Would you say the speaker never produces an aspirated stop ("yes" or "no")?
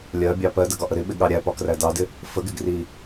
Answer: yes